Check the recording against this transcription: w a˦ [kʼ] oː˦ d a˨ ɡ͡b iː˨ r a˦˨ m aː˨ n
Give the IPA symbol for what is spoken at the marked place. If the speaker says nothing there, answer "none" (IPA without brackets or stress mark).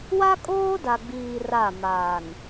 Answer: kʼ